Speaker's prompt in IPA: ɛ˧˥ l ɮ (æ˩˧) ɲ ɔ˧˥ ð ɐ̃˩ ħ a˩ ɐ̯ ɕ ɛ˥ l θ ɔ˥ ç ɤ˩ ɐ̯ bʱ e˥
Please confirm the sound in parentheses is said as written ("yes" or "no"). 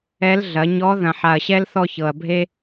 no